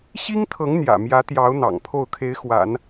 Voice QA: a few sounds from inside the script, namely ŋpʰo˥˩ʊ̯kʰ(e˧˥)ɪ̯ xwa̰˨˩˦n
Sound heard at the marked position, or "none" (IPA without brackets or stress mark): e˧˥